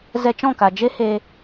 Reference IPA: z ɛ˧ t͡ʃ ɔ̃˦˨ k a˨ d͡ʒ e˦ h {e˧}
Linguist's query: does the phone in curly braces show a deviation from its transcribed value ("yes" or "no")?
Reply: no